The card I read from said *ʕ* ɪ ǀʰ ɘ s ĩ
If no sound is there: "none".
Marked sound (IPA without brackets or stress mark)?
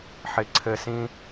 ħ